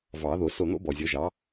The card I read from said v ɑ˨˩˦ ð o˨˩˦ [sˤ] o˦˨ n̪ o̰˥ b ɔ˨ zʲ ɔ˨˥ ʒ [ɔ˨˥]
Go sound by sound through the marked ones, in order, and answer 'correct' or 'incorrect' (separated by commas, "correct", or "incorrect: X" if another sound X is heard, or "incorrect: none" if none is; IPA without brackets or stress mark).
incorrect: s, incorrect: ɑ˨˥